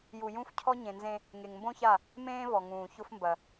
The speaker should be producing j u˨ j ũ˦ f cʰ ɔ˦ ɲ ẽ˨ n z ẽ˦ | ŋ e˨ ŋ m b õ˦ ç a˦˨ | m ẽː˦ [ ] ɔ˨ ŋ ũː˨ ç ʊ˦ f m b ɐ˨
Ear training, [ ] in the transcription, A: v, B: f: A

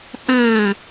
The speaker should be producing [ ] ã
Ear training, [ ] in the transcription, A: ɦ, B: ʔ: B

